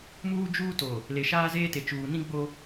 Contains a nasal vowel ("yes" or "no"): yes